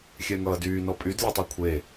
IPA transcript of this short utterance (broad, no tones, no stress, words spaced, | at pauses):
xʲɛŋʌːdyːnɔ pʼydlʲɔtˤy kʷʰe